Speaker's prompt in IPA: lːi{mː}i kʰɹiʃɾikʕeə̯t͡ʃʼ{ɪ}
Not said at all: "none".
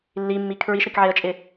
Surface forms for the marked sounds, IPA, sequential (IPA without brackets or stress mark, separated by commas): mː, ɪ